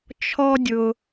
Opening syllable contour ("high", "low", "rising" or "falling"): high